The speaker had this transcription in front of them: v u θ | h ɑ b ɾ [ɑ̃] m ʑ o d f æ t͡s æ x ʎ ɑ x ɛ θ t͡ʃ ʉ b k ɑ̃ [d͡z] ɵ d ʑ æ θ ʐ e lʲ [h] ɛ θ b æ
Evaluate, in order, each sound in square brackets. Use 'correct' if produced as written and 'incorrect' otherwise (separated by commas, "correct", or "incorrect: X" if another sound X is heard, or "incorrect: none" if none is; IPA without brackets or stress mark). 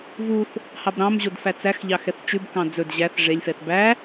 correct, correct, incorrect: f